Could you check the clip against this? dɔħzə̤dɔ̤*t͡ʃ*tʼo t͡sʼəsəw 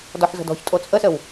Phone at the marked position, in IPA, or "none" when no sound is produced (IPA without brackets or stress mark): ç